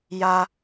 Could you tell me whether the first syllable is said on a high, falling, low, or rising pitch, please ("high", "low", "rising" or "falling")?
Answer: high